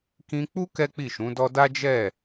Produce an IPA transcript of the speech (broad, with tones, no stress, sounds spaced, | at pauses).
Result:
k ĩ˧ k͡p u˦ k ɛ˦ k͡p i˦˨ ʃ ũ˨˦ d ɔ˦ d a˦ d͡ʒ ɛ˦˨